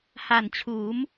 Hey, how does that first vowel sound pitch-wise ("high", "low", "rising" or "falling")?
low